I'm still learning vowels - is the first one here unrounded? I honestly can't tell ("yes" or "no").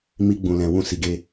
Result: yes